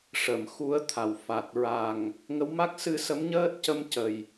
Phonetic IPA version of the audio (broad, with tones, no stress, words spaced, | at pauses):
ʂə˨˩˨mxu˧˥ə̯ t̪ʰa˨˩wfa˨˩t̚ ɹa˨˩ŋ | ŋə˧˥wma˦˥k̚sɨ˧ sə˧˥mɲəː˦˥t̚cə˧m cə˨˩j